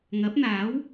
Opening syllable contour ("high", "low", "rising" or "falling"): rising